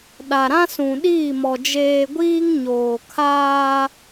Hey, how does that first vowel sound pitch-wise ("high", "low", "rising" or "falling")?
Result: low